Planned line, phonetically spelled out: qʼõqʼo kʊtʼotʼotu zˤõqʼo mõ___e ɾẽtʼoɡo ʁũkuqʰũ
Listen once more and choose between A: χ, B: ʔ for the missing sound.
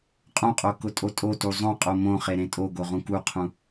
A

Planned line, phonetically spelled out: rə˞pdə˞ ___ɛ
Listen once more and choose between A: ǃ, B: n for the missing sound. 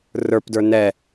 B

